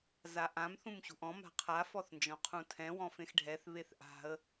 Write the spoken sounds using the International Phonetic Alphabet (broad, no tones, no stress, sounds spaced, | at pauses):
z a ʔ ã m θ ũ m ɕ ṳ ʔ ɔ̃ m a̤ qʰ a f ɔ θ n d͡ʒ ɔ̃ qʰ ũ tʰ ɛ̃ w ɔ̃ f ẽ x ɖʱ ɛ θ β e θ ʔ a̤ ə̯